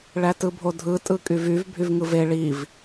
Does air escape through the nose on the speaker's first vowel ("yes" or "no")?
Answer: no